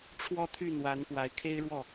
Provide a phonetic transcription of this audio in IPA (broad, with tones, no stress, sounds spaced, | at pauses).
ʈ͡ʂʰ w ɔ˥˧ t̪ʰ y˥˩ n̪ w a˧˥ n p w a˧˥ ɪ̯ kʰ e˥ ɪ̯ ɻ w ɔ˥˩